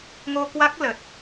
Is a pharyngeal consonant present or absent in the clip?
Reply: absent